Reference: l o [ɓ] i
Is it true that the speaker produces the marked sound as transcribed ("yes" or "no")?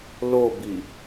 no